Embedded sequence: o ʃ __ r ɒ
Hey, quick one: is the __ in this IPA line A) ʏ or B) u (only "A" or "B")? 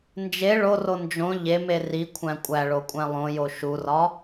B